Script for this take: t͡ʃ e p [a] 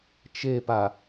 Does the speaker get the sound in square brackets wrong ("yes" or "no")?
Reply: no